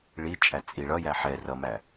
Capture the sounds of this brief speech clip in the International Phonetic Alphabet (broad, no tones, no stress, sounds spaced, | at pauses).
ɭ i t͡ʃʼ æ t͡sʼ i ɭ ʌ j æ ħ ɛ r ʌ m æ